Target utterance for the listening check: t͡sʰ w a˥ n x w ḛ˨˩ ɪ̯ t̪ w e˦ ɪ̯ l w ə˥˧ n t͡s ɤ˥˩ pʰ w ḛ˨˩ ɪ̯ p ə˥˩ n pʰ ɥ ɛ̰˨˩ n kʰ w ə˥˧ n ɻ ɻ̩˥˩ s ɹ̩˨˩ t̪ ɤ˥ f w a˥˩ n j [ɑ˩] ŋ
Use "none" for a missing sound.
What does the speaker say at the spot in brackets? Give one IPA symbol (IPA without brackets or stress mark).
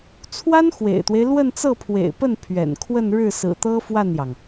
ɑ˩